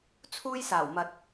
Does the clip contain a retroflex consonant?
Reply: no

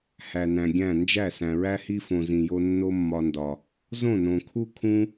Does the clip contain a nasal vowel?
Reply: yes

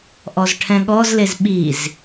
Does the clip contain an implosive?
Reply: yes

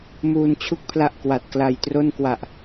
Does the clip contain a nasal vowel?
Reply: no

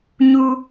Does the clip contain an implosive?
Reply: no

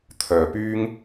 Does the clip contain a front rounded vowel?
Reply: yes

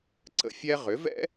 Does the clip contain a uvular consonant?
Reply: yes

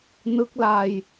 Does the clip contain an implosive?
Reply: no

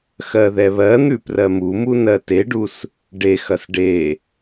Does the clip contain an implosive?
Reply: no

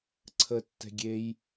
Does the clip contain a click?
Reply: yes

